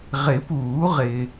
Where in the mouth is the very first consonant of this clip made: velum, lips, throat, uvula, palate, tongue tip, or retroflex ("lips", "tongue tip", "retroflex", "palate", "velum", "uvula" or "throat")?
uvula